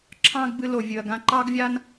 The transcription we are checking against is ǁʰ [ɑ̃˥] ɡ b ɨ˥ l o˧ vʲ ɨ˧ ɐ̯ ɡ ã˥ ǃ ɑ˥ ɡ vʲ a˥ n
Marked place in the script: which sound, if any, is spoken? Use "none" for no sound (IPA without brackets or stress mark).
ɑ̃˥